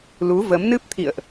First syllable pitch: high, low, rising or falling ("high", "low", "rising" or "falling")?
rising